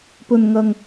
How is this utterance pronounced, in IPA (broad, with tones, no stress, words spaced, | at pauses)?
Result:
pɵ˧nŋɐ˧ŋ